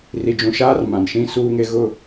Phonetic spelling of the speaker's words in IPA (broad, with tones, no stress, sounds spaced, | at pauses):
r i˨ d͡ʒ ũ˨ ʃ aː˦ r m ã˨ n ʃ ĩ˦ s uː˦ ŋ e˦ ɣ ʊ˦˨